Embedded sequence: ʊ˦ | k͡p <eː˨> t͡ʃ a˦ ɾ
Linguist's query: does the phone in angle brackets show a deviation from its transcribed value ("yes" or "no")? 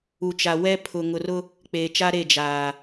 no